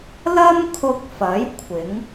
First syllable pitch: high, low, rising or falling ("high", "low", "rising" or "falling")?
high